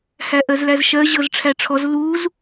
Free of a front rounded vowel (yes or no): yes